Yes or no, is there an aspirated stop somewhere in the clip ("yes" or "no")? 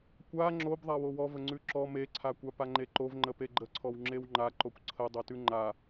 yes